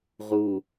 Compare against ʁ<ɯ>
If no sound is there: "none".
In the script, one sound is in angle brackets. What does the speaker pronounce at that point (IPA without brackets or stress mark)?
u